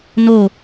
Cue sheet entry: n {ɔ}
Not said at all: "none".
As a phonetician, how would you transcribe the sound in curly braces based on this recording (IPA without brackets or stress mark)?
o